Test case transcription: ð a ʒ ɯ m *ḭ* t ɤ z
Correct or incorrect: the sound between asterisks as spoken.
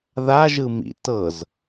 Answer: correct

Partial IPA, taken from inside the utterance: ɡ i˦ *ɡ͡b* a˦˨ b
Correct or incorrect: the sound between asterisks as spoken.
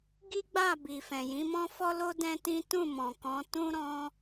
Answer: correct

